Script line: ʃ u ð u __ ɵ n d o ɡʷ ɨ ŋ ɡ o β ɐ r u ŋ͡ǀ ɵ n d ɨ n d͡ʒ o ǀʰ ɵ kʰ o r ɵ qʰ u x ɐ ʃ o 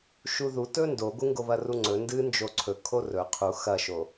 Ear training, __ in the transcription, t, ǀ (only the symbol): t